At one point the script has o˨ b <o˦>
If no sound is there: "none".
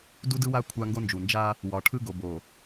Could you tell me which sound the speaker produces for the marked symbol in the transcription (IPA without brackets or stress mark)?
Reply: o˨